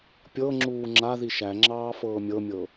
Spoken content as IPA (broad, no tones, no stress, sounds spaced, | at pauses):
pʲ ɤ ŋ͡ǁ uː ŋ͡ǁ a ð i ʃ æ ŋ͡ǁ ɑː f ɤː mʲ ɤ mʲ ɤ